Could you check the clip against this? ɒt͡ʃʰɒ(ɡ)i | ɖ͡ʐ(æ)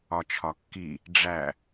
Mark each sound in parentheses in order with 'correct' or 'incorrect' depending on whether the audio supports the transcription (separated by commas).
incorrect, correct